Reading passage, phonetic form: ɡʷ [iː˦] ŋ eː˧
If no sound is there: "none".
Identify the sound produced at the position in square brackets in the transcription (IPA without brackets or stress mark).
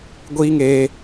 iː˦